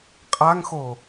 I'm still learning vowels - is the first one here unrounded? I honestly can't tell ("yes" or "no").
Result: yes